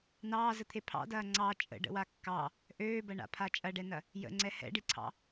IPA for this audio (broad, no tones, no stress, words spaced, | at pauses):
nɑːzət̪ʰe pʰɑ̰dɐː ŋ͡ǀɑ t͡ʃʼə̰ɖə̰wa kːɑ | ʔøːbɐɳa̰pʰa t͡ʃʼɐɖɛnɐ | jə̰ŋ͡ǀɛ hɛ̰ɖiǀʰɑ̰